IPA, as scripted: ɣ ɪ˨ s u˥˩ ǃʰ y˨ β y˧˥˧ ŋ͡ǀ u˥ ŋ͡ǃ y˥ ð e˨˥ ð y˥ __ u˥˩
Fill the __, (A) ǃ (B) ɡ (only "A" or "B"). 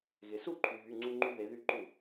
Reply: A